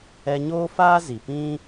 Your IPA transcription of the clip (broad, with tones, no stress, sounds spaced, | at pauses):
ɛ˧ ɲ oː˦ f aː˦ z i˨ p ĩ˦